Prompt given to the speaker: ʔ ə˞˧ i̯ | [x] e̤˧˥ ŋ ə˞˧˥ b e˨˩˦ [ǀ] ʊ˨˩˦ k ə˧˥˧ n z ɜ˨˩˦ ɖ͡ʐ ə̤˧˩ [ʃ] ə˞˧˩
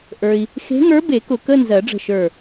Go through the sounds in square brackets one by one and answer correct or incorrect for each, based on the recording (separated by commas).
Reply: correct, incorrect, correct